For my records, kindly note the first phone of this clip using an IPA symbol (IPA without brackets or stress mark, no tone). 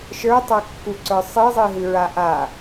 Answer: ʃ